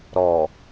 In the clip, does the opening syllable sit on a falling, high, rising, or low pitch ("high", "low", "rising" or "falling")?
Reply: low